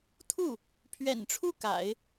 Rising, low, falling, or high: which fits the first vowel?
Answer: falling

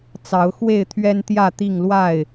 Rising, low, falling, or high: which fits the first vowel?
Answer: rising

